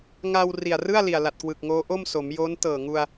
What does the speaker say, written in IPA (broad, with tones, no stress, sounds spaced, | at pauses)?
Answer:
ŋ a˧ w r i˨˩ a̯ r ɯ˥˩ a̯ l i˨˩ a̯ l a˨˩ t̚ k w ɯ˨˩ k̚ ŋ oː˦˥ ʔ o˥˩ m s o˩˦ m j oː˦˥ n t ɤː˨˩ ŋ u˧ a̯